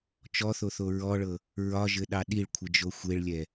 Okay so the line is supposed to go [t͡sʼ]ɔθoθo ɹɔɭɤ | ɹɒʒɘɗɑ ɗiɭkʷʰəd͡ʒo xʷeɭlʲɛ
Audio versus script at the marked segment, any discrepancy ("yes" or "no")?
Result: yes